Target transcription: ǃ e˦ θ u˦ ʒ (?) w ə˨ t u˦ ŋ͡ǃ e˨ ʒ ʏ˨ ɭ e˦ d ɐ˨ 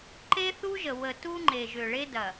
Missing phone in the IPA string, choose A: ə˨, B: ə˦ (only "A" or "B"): A